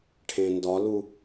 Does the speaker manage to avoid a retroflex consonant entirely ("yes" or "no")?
no